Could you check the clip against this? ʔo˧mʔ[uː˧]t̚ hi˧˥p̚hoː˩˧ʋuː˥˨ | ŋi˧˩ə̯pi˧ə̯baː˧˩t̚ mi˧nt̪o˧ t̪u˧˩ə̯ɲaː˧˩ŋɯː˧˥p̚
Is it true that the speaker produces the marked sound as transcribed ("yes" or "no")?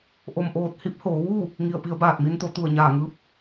no